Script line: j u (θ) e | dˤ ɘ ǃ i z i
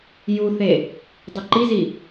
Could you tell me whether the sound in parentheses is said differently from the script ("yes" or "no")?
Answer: no